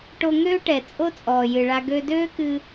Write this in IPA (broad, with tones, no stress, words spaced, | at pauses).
ʈo˧ŋøː˥ʈɛ˩ t͡sʼo˥t͡sʼɔː˩jɨ˩ɭa˧ ɡø˧døː˥kɨ˧